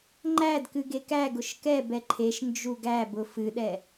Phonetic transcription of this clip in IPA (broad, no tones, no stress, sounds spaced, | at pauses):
ŋ͡ǃ æ d k ɨ ɡ e k æ ɡ ʊ ʃ k ɛ b ɛ ǃʰ e ʃ n d͡ʒ u ɡ æ b ʊ f ɨ ɗ ɛ